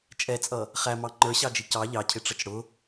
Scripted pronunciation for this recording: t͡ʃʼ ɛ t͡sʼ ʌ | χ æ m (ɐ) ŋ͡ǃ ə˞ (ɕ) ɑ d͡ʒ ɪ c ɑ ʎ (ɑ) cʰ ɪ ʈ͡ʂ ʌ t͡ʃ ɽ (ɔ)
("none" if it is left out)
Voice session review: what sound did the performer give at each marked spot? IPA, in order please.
ɑ, ɕ, ɑ, ʊ

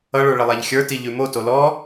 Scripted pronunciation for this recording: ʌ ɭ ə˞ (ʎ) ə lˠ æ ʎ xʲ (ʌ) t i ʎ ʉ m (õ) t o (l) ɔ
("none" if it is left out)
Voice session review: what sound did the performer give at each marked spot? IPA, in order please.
ɭ, ə˞, o, l

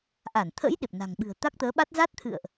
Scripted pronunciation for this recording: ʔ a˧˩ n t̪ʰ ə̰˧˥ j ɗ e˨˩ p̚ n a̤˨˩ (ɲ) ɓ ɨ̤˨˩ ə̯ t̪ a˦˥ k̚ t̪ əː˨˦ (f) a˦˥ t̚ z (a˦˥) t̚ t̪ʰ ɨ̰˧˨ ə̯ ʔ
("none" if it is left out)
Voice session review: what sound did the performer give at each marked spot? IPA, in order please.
ŋ, ɓ, a˦˥

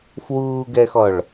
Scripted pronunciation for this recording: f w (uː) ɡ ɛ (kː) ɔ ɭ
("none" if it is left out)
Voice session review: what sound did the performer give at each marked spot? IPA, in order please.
uː, x

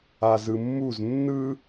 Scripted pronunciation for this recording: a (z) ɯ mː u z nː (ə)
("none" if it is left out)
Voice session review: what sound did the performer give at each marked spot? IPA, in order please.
z, ɯ

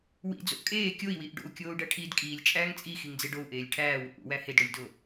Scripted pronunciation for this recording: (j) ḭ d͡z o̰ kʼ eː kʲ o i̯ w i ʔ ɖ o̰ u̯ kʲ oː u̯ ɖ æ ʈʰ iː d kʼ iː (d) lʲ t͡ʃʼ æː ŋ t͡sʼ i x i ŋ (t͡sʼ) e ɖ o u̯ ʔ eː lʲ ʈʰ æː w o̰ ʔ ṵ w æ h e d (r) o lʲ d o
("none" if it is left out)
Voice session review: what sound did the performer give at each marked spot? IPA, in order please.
w, none, d͡z, ɽ

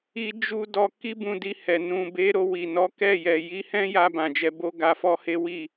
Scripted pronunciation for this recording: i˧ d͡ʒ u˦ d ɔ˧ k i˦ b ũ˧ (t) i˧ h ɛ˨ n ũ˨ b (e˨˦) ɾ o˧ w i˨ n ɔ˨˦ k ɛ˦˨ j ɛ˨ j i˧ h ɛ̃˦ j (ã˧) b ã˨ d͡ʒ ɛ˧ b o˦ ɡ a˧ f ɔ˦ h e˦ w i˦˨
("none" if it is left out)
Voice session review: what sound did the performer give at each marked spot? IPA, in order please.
d, e˨˦, a˧

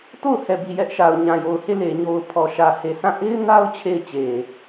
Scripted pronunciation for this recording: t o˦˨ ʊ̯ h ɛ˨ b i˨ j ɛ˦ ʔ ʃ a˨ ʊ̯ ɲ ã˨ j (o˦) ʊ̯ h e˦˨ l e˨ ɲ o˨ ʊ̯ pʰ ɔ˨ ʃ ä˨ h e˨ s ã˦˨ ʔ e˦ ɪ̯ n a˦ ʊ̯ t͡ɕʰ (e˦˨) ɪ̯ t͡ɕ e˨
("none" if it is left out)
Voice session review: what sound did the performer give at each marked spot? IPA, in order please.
o˨, e˦˨

